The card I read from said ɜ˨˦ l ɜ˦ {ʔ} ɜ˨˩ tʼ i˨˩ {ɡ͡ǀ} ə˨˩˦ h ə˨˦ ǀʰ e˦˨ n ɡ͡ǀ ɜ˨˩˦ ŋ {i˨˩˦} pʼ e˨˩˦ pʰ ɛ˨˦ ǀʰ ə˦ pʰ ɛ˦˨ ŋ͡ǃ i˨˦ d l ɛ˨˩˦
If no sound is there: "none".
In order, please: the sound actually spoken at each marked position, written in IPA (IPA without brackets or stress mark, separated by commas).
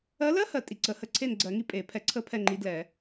h, ǀ, i˦